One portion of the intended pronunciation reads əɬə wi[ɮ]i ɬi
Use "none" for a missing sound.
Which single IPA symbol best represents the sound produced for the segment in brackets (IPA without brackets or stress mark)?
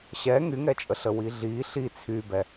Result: ɮ